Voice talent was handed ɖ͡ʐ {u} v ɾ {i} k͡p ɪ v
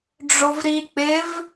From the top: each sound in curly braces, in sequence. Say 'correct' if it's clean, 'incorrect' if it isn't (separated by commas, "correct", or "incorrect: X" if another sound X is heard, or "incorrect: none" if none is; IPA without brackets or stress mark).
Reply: incorrect: o, correct